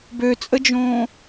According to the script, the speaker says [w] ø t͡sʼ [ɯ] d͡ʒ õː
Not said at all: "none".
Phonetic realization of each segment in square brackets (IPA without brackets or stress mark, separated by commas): b, ə